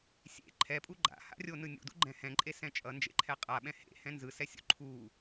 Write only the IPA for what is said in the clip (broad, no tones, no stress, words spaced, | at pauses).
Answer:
sʲḛ ǃʰɛpʼu ɡ͡ǃa̰ha̰rʲonɯ nʲṵdṵɡ͡ǃɛ̃ hɛ̃ǃʼesɛ̃ t͡ʃʼʌnd͡ʒḛǃʰɛ qʼaɓɛ̃ hḛhɛ̃ nzɯsɛsʲṵ ǃʰu